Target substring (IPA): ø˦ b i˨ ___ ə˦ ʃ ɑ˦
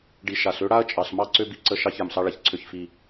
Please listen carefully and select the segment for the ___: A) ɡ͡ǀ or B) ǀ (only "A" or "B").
B